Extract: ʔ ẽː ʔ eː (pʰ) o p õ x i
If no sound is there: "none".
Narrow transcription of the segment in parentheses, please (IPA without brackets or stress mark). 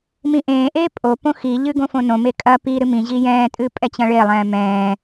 pʼ